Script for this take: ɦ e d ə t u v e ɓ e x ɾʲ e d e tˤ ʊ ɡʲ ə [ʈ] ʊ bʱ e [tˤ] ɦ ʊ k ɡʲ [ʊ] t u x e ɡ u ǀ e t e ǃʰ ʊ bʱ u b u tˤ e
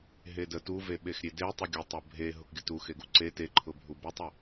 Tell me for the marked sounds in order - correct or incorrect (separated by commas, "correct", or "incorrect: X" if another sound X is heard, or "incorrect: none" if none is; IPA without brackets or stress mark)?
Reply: incorrect: tˤ, incorrect: none, correct